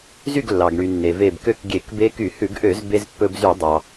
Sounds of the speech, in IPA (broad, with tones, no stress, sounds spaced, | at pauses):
z y˥˨ ɡ lː ɑ˩ ɡ ɳ y˩ nː e˩ v e˧˩ b k ø˥˨ k ɡʲ e˧˩˧ k b e˦˥ k y˧˩˧ h ʉ˧˩˧ ɡ ʔ ø˧˩˧ z b e˧ z pː ɵ˧ b z y˧˩˧ dˤ ɑ˩